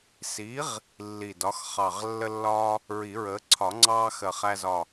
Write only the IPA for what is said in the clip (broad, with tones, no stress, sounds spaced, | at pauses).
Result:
s i˨˥ ʁ | lː i˧˩ d ɒ˨˥ x χ ɑ˧˩ ʁ lː ə˦ lː ɒː˦ | ɹ i˨˩˦ ɹ əː˨˥ ǀʰ ɒ˨˩˦ ŋ͡ǀ ɑː˦ x ɜ˧˩ χ æ˦ z ɒː˧˩